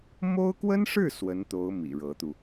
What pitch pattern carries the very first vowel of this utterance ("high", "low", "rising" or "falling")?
high